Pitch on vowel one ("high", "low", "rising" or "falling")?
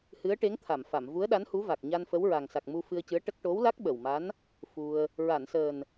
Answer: rising